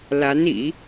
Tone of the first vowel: rising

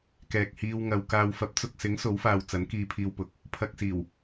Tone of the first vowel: low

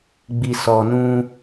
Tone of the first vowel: low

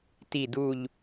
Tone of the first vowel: falling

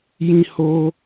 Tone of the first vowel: high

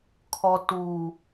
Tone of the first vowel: low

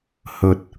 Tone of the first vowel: low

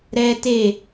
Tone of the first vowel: high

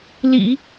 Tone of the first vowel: low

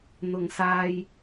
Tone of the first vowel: low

